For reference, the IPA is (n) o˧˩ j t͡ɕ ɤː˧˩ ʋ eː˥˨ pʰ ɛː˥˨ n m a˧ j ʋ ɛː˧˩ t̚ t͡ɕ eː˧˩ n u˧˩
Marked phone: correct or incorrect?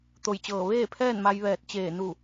incorrect: t̪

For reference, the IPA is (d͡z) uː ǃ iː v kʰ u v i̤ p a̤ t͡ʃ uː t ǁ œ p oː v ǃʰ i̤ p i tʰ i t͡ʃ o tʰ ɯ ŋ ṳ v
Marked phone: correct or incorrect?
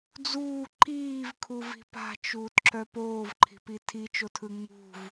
correct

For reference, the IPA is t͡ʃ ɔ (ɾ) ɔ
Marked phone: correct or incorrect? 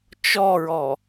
incorrect: ɹ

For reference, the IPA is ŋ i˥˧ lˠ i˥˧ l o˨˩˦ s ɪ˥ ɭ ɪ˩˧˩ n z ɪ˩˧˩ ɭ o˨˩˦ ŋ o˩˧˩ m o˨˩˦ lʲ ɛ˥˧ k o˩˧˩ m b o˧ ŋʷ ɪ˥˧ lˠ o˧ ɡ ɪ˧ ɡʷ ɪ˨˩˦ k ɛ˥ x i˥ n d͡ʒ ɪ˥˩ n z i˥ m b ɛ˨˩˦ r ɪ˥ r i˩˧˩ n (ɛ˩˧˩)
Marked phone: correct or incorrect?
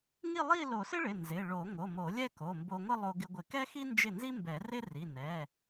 correct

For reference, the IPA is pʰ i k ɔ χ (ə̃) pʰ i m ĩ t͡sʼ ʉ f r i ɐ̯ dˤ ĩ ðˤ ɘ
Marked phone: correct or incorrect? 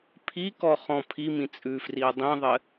incorrect: ɔ̃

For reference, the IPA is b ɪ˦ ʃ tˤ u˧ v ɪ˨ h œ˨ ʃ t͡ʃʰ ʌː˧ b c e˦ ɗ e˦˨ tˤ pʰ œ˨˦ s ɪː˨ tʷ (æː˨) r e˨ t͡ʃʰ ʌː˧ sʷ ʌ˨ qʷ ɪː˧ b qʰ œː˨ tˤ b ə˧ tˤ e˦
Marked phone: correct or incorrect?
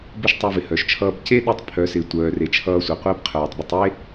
incorrect: œː˨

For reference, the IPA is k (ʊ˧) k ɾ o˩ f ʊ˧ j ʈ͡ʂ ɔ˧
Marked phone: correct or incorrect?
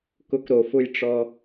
correct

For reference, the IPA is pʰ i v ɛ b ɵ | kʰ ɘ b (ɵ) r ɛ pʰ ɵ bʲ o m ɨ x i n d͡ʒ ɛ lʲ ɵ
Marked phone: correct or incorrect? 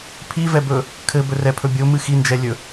correct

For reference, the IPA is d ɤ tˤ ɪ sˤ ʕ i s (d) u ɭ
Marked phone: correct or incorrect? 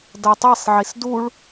correct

